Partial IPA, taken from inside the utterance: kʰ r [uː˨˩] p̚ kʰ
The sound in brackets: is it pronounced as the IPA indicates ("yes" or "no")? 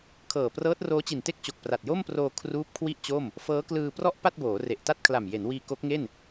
no